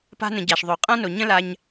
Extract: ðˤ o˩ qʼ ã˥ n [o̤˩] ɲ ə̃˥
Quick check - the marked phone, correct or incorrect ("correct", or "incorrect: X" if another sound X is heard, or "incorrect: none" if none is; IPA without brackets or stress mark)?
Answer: incorrect: o˩